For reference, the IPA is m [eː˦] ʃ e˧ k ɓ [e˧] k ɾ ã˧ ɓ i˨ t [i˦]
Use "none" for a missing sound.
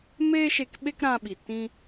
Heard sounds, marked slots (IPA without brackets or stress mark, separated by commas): eː˦, e˦, ĩ˦